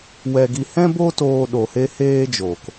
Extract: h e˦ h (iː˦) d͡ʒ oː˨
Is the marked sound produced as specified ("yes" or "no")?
no